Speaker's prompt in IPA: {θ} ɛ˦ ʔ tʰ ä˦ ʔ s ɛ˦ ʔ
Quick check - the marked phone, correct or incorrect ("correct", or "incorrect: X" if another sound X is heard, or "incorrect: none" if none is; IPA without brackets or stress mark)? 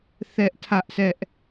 correct